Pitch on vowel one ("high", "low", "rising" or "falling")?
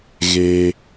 high